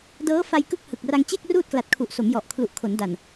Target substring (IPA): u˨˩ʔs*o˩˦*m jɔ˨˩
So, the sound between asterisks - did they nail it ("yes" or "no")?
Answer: yes